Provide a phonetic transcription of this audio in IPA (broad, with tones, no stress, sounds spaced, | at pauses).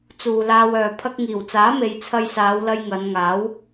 t͡s uː˨ l aː˧ w œː˨ pʰ ɐ˧ k̚ ŋ iː˨˩ w t͡s aː˨˥ m e˨˧ j t͡sʰ ɐ˧ j s aː˨˧ w l ɐ˧ j ŋ ɐ˨˧ n ŋ aː˨˥ w